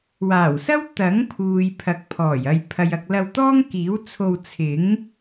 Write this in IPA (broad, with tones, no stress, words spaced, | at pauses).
waː˨˩wsɐ˥w t̪ɐ˨˥ŋpʰuː˨j pʰɐ˨˥k̚pʰɔː˨˩j ɐ˨jpʰɐ˨j ɐ˨k̚lɐ˧wt̪ɔː˥ŋkiː˨˥w t͡sʰo˧w t͡sʰɪ˨˥ŋ